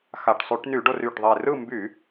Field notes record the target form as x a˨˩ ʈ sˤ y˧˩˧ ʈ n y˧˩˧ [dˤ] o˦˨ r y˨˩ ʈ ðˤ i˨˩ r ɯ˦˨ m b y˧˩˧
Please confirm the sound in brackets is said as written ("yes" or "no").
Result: no